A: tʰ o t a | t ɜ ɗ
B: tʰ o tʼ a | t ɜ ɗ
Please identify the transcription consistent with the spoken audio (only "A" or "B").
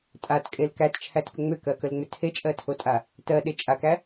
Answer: B